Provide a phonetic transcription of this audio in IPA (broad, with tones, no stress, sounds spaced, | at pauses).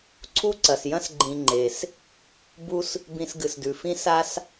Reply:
ǀʰ u˥ ǀ ɐ˩ s j ɐ̃˥ s ɡ͡ǃ ĩ˨ ŋ͡ǃ e˩ s | b u˦ s | b ĩ˨ s ɡ ɨ˩ s d ʉ˩ f ĩ˦ s a˦ s